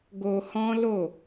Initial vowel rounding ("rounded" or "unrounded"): rounded